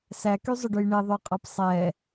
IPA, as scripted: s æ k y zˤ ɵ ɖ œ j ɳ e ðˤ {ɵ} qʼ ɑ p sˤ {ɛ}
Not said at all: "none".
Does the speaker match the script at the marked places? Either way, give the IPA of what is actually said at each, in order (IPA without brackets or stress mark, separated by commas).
œ, ɛ